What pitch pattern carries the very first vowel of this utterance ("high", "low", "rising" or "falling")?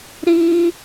high